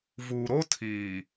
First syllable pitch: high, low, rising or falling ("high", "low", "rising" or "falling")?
low